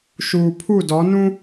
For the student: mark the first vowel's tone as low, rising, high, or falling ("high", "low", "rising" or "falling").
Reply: low